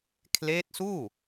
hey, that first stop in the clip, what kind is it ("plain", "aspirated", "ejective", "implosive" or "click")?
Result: aspirated